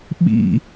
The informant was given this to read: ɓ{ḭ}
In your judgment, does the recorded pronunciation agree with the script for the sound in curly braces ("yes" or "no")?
yes